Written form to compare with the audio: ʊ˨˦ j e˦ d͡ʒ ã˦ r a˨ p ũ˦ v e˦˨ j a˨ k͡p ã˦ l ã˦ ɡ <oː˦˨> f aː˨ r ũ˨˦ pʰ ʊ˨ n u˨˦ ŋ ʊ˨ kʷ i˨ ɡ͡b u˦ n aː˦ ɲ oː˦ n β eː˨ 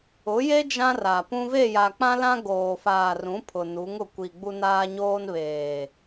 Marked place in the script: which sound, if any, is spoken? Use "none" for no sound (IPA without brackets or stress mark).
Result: oː˨